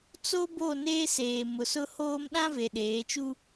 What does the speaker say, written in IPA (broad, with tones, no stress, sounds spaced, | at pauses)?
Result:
t͡s o˦ b o˦˨ n eː˦ s eː˨ m ʊ˨ s ʊ˦ h oː˦ m ɗ ã˦ v e˨ ɗ eː˨˦ t͡ʃ u˦